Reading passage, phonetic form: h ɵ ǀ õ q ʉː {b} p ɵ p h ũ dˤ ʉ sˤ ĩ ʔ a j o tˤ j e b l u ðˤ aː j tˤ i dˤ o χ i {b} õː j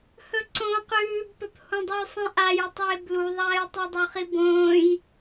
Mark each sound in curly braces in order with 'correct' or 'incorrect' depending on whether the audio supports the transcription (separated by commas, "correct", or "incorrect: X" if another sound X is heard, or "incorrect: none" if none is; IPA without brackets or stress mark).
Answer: correct, correct